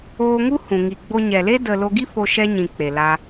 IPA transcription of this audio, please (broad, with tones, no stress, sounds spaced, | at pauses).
oː˧ ŋ u˦ h ũ˨ ŋ i˨ ɡ͡b o˧ ɲ ɛ˨ l e˦ d ə˨ l o˧ ɡ i˦ f o˦ ʃ ɛ˦ ɲ ĩ˨ k͡p e˨ l a˧